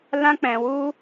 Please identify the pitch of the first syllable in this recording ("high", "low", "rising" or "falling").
high